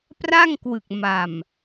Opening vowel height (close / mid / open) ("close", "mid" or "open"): open